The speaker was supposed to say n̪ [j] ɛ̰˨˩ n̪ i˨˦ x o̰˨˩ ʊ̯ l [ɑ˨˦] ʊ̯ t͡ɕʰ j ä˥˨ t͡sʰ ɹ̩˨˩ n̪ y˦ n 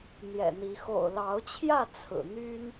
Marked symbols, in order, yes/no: yes, yes

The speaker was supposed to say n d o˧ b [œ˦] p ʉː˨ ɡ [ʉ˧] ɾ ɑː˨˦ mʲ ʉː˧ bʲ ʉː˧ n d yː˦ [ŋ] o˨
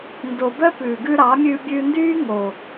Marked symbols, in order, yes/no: yes, yes, yes

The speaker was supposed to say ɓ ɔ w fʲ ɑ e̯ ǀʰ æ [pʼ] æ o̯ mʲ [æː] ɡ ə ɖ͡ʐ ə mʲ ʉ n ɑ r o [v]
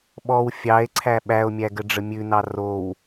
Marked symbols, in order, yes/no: no, no, no

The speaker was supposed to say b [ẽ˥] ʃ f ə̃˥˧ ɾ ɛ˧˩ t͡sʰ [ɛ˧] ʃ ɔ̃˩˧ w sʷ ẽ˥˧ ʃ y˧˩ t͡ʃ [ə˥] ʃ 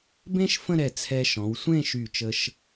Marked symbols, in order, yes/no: yes, yes, no

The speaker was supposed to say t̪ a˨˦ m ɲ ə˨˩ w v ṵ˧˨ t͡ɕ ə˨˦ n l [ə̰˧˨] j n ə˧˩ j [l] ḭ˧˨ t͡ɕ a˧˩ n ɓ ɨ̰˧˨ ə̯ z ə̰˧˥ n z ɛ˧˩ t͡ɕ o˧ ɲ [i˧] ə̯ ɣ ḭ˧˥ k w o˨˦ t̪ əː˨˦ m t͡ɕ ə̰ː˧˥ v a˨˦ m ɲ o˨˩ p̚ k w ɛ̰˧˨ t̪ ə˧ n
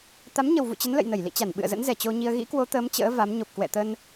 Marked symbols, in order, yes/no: yes, yes, yes

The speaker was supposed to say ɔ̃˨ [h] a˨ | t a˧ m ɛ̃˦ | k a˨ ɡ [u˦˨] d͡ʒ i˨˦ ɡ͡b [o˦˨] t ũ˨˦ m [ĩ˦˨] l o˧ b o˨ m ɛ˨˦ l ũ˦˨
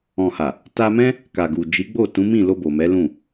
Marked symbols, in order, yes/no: yes, no, yes, yes

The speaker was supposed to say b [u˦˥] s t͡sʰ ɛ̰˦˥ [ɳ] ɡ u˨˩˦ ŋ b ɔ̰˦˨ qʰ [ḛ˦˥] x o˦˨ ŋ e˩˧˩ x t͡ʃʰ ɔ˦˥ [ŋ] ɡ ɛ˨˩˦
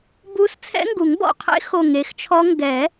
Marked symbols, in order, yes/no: yes, no, yes, yes

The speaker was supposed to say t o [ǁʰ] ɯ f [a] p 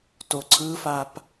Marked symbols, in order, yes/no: no, yes

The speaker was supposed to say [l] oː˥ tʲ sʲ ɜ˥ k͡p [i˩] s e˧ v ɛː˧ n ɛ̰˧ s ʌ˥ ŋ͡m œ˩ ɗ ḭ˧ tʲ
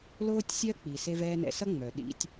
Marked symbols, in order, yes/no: yes, yes

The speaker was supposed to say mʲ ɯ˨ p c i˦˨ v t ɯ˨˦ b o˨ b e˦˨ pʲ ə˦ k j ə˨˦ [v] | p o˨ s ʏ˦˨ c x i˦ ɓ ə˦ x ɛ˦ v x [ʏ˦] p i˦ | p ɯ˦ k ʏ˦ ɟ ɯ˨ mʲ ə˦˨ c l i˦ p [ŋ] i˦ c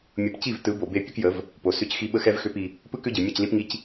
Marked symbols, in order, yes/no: yes, yes, yes

